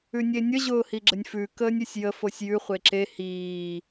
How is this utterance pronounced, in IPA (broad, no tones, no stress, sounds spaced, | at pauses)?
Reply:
ʉ nʲ e nʲ ə ʑ ʊː h i ɡ͡ǁ ə nʲ f ʉ k əː nʲ ʉ sʲ j ə f o sʲ j ʉ χʷ e ǁ e h iː